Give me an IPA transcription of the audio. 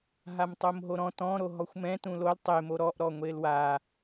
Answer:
ɦ a m tˤ o m ɦ o ɾ ɔ̃ t ɔ̃ ɾ o ɦ ɔ xʷ m ɛ̃ t ũ l o l tˤ e m o ɾ ɔ ʔ ɾ ɔ ŋʷ e l w a

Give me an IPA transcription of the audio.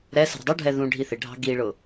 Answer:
ɾ ɛ s ə̤ ɾ ə̤ dˤ u ɖʱ ɛ ð ũ ɖʱ i θ ɪ ɖʱ ɑ̤ ɡ i ɭ ʊ

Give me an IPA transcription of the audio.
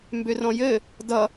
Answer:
m b ʏ r ɔ̃ j ɘ | d ʌ

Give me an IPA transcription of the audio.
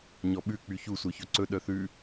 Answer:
ɲ ɔ ɓ ʉ k͡p y ç u sʷ œ ç ɵ ǀ ɵ ɗ œ θ ʉ

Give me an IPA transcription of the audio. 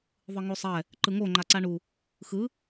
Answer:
ðˤ ɯ ŋ o sˤ ɛ | ǃ ɯ ŋ o ŋ͡ǃ a ǀ a ɳ u | x ɯ

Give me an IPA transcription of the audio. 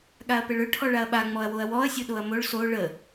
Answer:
ɠ a ɐ̯ p ə ɭ ø ʈʰ ɔ ɭ a ɐ̯ ɓ a ŋ͡m ɔ ɐ̯ w o ɐ̯ w ɔ ɐ̯ sʲ o ɗ o ɐ̯ m o ɭ s o ɭ ə

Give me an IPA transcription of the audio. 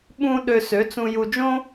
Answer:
ɓ ũ˧ ɗ ø˧ s ø˩˥ t͡s ũ˧ j u˧ d͡ʒ õ˥

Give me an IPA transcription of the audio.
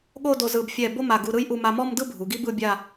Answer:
ɠ o˥˧ d o˧ z ɯ˧˩ b fʲ ɛ˧˩ b o˥ m a˧˩ ɡ u˧ ɾ ɯ˥ j ʔ u˧ m a˧ m ɔ˥˧ m d ɯ˥˧ bʱ u˩˧ ɡ i˥ b ɯ˥˧ bʲ a˥˧

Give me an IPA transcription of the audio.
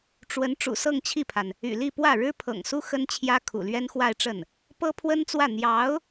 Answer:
ʈ͡ʂ w ə˧˥ n ʈ͡ʂ ṵ˨˩ s ɤ˥˧ ŋ t͡ɕʰ i˥˩ pʰ a˩ n | y̰˨˩ l i˥˧ p w ä˥˩ ɻ ɻ̩˥ pʰ ɤ̰˨˩ ŋ s u˥ x ə˥ n t͡ɕʰ j ä˥ kʰ ṵ˨˩ l ɥ ɛ˥ n x w a˥˧ ɪ̯ ʈ͡ʂ ə˥˩ n | p ɤ˥ pʰ w ə˥ n t͡s w ä˥˩ n̪ j ɑ˧˥ ʊ̯

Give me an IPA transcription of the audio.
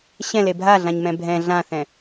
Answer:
ɕ ɛ̃ l e bʱ a ɮ ã ɲ m ɛ̃ bʱ ɛ̃ ɮ ã θ ɛ̃

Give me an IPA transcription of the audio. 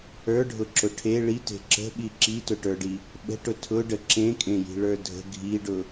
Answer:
ə˞ ɖʱ ʊ ǁ ʊ ʈʰ e ɭ i t e̤ ǁ ə̤ ɓ i ǁ i t ʊ ʈ ə˞ ɖ i | ɓ ə̤ ʈ ʊ tʰ ʊ ɖ ə ǁ ẽ kʼ ẽ j i̤ ɭ ə˞ dʱ ə̤ ɡʱ i ɖ ʊ

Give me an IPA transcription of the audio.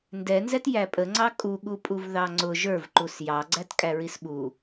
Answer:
n d ɛ n z ɛ t j æ pʼ ə ŋ͡ǀ ɑ kʼ u ɠ u pʼ u v ð ɑ ŋ͡ǀ ʊ ʒ ə˞ v ǃ u s j ɑ ɡ͡ǀ æ t kʼ æ ɹ i s ɓ u

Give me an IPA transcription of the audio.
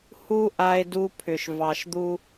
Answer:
h u˦ ʔ a˦ e̯ d u˦ pʰ ʏ˨ ʃ v ɑ˨ ʃ d̪ u˦

